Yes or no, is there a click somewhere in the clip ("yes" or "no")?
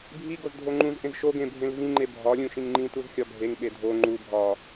yes